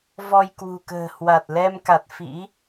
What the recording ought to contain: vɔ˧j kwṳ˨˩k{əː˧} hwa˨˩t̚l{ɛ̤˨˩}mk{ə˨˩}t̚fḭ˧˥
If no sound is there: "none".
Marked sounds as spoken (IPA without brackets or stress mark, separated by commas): ə̤ː˨˩, ɛ˧, a˨˩